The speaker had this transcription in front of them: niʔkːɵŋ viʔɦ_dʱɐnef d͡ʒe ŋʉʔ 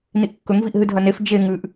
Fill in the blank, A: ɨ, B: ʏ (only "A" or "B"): A